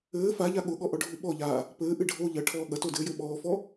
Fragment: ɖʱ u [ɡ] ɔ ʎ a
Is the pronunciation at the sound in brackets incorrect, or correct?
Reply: incorrect: ɓ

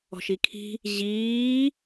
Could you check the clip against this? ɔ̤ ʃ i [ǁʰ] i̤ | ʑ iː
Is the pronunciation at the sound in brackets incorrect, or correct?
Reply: incorrect: kʰ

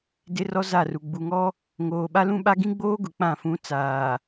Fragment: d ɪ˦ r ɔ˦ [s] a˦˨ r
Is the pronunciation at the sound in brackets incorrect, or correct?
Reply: incorrect: z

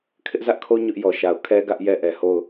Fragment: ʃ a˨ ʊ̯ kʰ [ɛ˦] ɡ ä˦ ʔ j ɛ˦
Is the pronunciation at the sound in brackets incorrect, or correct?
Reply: correct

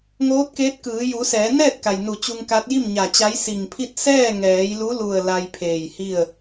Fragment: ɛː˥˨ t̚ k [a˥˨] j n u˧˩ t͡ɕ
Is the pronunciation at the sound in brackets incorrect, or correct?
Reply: incorrect: a˩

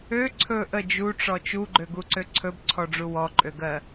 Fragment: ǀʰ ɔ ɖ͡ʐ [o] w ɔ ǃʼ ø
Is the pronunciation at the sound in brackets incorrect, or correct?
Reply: incorrect: u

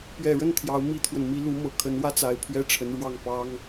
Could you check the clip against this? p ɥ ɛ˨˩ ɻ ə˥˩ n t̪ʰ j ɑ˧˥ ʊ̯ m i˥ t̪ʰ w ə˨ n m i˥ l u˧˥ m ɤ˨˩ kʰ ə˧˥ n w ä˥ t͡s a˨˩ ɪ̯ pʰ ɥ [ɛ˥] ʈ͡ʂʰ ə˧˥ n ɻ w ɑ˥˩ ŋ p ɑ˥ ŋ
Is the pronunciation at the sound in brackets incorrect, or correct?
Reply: correct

